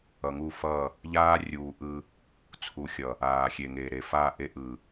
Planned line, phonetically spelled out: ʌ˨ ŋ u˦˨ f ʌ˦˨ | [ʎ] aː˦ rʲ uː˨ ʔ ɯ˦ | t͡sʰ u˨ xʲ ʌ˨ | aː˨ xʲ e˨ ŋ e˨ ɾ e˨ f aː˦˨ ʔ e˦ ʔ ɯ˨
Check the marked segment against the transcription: correct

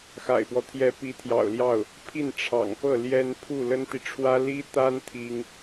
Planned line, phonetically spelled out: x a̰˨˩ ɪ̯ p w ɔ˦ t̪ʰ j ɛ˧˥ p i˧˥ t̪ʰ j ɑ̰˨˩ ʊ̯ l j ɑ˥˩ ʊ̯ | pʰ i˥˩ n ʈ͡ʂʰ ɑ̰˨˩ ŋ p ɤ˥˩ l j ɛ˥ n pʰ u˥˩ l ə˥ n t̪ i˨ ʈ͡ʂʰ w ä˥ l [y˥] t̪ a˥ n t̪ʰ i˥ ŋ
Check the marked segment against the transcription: incorrect: i˥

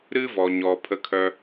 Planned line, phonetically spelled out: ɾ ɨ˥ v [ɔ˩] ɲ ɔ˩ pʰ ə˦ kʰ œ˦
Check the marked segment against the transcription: correct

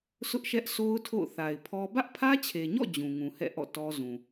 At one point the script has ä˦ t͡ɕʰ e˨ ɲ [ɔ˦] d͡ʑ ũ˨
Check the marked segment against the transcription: incorrect: ɔ̰˦˨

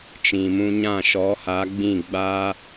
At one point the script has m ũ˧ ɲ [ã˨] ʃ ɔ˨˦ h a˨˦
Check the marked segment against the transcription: incorrect: ã˦˨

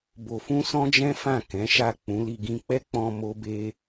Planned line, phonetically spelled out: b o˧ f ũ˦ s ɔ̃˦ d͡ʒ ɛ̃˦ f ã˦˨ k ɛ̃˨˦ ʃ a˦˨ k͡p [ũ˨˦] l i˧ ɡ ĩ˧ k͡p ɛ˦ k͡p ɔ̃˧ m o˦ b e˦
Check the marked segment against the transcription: correct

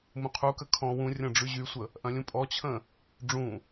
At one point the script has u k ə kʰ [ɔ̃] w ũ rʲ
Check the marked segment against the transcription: correct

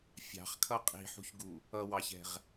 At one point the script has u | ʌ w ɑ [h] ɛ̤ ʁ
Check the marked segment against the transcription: incorrect: ç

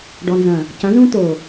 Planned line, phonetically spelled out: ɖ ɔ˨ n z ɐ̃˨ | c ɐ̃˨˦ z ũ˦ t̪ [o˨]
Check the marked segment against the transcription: correct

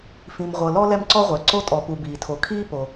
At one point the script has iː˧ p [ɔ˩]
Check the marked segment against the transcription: incorrect: o˩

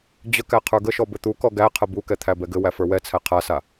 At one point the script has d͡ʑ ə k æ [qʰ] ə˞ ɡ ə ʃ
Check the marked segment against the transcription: correct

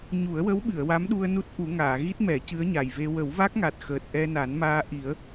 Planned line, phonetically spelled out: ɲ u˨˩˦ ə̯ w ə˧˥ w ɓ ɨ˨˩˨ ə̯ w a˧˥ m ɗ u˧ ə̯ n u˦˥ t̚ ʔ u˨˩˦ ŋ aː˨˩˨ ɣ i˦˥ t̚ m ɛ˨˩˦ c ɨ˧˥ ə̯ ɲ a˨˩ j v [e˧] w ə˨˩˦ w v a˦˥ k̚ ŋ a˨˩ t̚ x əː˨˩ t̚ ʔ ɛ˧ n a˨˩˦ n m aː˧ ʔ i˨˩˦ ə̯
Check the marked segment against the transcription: correct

